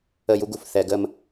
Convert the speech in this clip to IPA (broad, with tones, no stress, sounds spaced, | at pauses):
ə˦˨ j u˦ ɡ u˨ f θ ɛ˧ ɡ əː˦ m